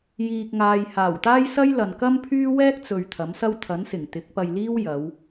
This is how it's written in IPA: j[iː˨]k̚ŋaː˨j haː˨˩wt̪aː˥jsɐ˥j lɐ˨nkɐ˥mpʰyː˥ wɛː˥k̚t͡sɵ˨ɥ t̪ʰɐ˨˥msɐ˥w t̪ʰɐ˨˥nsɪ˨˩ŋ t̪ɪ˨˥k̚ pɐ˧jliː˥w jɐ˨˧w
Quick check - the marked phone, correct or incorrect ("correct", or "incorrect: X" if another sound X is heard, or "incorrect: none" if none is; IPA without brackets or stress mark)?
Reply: correct